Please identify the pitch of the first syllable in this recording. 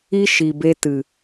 high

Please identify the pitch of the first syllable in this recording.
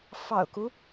low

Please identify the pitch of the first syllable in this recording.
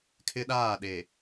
high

